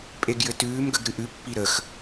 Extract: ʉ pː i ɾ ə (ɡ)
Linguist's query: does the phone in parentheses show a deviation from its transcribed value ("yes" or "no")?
yes